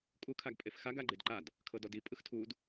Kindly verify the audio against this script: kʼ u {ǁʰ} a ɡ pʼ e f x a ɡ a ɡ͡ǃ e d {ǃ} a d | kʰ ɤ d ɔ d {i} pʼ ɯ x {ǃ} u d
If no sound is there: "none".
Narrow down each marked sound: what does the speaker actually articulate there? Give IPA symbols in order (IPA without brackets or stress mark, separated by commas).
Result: kʰ, ǃ, i, tʰ